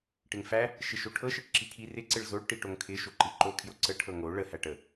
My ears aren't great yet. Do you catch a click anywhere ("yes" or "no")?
yes